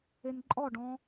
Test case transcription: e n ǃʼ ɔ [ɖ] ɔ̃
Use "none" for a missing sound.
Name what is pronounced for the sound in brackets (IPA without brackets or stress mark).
ɖ